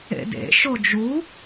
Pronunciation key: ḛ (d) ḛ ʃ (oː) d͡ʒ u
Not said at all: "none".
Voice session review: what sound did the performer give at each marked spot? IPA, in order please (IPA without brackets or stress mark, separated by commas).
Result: d, o